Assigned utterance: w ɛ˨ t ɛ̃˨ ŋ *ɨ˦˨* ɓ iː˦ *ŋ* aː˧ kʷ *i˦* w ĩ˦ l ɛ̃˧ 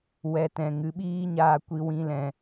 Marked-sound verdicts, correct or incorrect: incorrect, incorrect, correct

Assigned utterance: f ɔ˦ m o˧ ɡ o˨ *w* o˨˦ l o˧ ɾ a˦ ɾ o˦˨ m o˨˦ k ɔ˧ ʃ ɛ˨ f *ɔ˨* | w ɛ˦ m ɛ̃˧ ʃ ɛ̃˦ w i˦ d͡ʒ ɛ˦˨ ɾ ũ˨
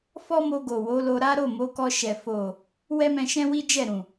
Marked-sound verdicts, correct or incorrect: correct, incorrect

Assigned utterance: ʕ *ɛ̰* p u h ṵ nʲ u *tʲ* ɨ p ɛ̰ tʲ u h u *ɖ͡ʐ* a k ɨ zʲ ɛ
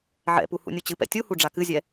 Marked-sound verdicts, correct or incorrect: correct, incorrect, correct

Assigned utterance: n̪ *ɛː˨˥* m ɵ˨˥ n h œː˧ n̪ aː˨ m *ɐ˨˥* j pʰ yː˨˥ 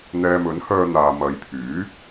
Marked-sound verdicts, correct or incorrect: incorrect, incorrect

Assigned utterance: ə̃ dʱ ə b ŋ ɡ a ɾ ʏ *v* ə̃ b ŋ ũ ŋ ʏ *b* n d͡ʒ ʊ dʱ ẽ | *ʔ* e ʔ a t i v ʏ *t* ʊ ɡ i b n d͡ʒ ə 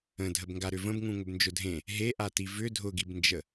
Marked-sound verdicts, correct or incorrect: correct, correct, incorrect, incorrect

